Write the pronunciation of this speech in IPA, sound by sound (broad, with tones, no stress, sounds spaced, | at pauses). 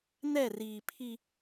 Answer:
n ɛ˦˨ r iː˨ pʰ i˦